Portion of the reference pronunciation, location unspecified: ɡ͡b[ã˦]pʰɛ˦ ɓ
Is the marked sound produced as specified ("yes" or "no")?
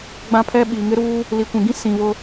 yes